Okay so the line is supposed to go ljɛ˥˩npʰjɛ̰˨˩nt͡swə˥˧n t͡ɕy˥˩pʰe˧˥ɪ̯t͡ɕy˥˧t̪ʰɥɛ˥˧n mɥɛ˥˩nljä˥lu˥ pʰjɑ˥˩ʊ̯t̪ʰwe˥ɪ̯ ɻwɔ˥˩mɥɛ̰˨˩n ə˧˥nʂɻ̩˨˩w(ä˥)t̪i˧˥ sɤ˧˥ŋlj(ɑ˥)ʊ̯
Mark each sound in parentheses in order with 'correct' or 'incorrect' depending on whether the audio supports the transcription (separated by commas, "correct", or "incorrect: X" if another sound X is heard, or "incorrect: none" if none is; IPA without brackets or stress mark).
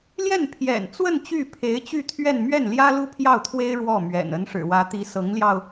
incorrect: ä˧˥, incorrect: ɑ˧